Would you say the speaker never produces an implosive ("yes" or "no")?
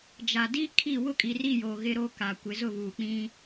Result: yes